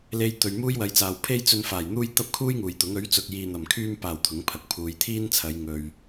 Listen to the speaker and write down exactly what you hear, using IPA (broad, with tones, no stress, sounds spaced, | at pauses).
l e˧ j t̪ ɵ˨ ɥ m uː˥ j w ɐ˨˧ j t͡s aː˨ w pʰ e˥ j t͡s ɵ˧ n f aː˨˩ j n̪ uː˥ j t̪ ɐ˥ p̚ kʰ uː˥ j ŋ uː˨˩ j t̪ ʊ˨˥ ŋ ɵ˨˥ ɥ t͡s ʊ˨ k̚ j iː˨ n̪ ɐ˨˩ m kʰ yː˧ m p aː˨˩ w t̪ʰ ʊ˨˥ ŋ pʰ ɐ˨ k̚ pʰ uː˨˧ j t̪ʰ iː˥ n t͡sʰ ɐ˨˧ j ŋ ɵ˨ ɥ